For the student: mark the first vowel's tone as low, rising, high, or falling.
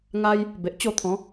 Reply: high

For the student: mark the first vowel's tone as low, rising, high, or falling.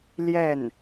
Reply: falling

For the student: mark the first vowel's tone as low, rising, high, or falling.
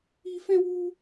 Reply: high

